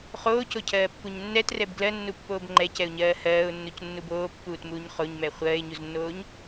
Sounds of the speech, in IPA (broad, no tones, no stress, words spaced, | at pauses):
χoːcocʰɜːpːuɲ nːɛtrɛb ɡlɜnːupːoːb ŋ͡ǃɛcɛʊ̯ɲɜː hɜːʊ̯nːucnːub oːpːuːtmuːɲ χoɲmɛ χʷɜːɪ̯ɲuznːoːɲ